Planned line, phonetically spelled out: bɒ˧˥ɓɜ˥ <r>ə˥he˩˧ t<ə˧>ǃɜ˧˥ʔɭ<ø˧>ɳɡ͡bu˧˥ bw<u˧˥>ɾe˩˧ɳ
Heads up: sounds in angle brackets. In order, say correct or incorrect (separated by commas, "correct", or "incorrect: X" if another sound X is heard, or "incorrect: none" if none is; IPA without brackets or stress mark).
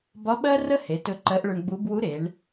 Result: correct, incorrect: ɵ˧, incorrect: ɵ˧, correct